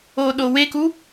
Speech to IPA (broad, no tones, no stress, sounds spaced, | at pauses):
o ɗ o w e k u